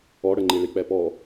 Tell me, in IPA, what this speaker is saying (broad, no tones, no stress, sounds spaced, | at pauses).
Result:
ɔ ɽ ə ŋ͡ǃ i ɭ i k͡p ɛ p ɔ